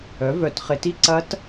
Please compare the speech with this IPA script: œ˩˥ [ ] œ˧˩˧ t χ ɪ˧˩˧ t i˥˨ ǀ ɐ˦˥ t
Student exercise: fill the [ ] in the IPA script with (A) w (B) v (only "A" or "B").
B